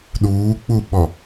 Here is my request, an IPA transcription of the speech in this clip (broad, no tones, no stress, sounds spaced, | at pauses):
ɗ uː k͡p u ɓ ɔ